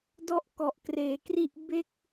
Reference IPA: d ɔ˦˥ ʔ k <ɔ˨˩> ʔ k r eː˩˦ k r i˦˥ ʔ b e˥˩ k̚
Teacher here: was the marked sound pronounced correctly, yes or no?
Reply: yes